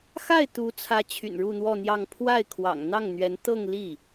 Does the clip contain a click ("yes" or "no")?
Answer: no